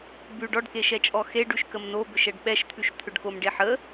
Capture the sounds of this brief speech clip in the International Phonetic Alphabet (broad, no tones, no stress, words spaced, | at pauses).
bʉ ɖɔɖkeʃɛt͡ʃʼɔ xeɖ ʉʃkəmnobʏʃ ɛɖɓɛʃt̪ʰʉʃt̪ʰʏɖ komɖeħə